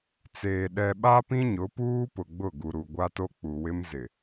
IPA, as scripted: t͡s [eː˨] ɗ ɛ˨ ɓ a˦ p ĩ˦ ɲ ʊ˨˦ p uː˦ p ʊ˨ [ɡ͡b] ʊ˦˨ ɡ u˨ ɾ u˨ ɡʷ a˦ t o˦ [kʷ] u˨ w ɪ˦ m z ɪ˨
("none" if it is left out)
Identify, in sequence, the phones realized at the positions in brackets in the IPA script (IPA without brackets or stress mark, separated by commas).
eː˨, ɡ͡b, k͡p